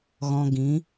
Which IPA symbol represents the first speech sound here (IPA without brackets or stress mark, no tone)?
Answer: ɣ